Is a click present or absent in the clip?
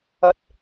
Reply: absent